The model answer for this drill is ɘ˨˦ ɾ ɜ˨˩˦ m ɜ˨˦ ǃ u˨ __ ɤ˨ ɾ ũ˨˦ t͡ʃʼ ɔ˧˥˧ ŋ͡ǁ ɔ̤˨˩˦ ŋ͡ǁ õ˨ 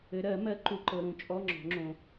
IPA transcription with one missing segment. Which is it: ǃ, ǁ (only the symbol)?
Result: ǃ